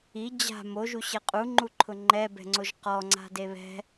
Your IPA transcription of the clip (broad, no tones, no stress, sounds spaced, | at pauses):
i d͡ʑ a̤ m o ʒ u ɕ ɛ qʼ u ŋ͡ǃ u ǃʰ ʊ ŋ͡ǃ ɛ b ɛ̤ ŋ͡ǀ o ʒ q ɔ ŋ͡ǀ a̤ d e β ɛ̤